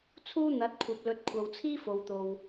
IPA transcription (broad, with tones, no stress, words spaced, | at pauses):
t͡sʰuː˥n̪ɐ˨˥t̚kʷʰɐ˨p̚lɵ˨˥t̚ kʷʰɐ˨wt͡sʰiː˥ fo˨wt̪o˨w